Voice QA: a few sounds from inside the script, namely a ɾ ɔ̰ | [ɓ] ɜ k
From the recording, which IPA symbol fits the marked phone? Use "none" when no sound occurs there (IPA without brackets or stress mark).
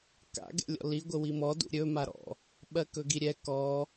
ɓ